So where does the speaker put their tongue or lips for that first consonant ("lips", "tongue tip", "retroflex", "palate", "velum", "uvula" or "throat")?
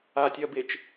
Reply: tongue tip